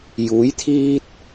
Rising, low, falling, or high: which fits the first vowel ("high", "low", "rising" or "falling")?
rising